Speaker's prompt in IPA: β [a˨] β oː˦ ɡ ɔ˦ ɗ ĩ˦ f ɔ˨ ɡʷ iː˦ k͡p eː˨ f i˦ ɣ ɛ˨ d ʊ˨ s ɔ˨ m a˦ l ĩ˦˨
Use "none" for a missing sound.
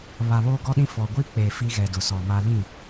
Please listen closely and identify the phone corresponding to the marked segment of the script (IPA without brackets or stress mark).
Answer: a˨